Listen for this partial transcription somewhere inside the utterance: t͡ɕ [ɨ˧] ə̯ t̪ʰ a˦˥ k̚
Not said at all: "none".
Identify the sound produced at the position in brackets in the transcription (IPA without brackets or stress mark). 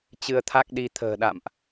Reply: ɨ˧